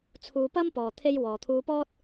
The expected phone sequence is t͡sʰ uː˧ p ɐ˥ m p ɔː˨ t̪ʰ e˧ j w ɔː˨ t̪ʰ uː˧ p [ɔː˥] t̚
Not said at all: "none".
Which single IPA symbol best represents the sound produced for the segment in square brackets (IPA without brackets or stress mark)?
ɔː˥